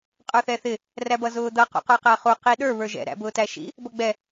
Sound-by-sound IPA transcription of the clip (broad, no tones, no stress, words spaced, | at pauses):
qʼə˞θɛθɪ | ræbʌzʊːd̪ʌ qṵqə˞qæχu qiɗə˞ βə˞ʒɛ̰ ɾæ̰bʊːtæʃḭ | bʌɡ͡bɛ